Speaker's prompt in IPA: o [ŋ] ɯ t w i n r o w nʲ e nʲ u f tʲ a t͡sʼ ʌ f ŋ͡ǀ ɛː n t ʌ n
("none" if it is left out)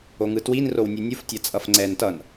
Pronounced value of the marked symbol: ŋ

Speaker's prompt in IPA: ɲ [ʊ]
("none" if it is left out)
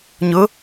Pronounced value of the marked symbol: ʊ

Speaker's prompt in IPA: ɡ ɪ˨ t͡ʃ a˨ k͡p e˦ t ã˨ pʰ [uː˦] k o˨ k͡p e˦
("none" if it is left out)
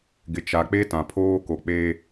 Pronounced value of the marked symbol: oː˦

